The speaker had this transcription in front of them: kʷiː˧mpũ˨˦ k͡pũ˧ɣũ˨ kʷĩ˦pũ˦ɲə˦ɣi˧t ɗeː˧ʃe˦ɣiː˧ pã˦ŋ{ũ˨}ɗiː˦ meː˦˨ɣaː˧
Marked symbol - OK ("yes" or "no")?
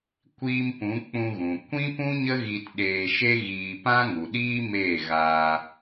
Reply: no